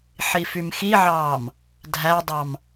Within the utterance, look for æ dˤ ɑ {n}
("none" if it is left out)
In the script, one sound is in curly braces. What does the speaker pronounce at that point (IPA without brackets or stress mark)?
m